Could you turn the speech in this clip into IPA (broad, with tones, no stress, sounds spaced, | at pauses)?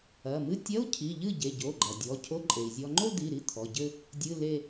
ɐ˩˧˩ m ɨ˥˧ tʲ ɐ˧˥˧ u̯ cʰ i˩˧˩ ʎ ɨ˥˩ ɟ e˩˧˩ ɟ o˩˧˩ ɡ͡ǃ ɐ˩ dʲ ɔ˩˧˩ cʰ o˧˥˧ ǃʼ e˩ i̯ zʲ ɔ˧ ŋ͡ǃ o˥˧ d̪ i˩˧˩ ɾ i˥˩ t̪ʰ ɔ˩˧˩ ɟ ɘ˥˧ | dʲ ɨ˧˥˧ l e˥˧